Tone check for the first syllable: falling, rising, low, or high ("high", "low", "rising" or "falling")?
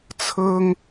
high